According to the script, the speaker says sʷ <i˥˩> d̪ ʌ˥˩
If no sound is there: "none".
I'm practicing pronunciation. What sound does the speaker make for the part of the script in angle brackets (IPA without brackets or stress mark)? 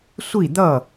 i˥˩